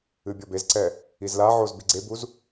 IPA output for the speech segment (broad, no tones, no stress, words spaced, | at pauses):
ɨbʲɔbezǀɛ | izlaʕoz biɡ͡ǀebuz